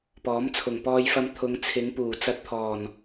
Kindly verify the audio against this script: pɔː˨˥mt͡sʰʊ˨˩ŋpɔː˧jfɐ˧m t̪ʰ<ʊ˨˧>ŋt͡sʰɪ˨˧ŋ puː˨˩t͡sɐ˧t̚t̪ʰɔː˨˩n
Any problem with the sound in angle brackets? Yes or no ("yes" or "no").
no